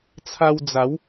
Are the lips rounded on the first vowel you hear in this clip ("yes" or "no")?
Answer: no